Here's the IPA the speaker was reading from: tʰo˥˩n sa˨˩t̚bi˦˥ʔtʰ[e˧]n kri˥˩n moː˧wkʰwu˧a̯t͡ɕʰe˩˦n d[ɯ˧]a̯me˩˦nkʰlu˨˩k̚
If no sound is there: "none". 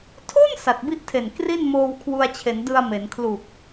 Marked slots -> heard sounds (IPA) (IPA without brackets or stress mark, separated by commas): e˨˩, ɯ˧